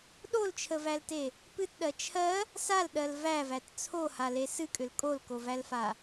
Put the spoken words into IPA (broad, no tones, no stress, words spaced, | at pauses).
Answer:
ɗolt͡ʃʰəvælte | pɨtɗɜ t͡ʃʰɜ | salɗɜl vævæt t͡sʰohale sɨkʼʏl kʼolkovælfa